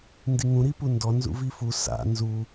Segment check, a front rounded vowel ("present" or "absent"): absent